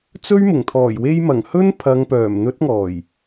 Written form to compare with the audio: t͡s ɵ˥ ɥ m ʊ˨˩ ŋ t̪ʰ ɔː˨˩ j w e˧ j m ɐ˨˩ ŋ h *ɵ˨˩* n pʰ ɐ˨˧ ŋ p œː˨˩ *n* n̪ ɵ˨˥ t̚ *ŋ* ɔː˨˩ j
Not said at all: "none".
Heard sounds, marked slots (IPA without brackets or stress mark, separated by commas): ɵ˥, m, ŋ